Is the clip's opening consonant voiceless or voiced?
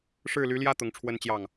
voiceless